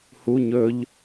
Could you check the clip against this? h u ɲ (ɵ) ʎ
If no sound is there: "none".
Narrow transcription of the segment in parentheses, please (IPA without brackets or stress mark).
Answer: ɵ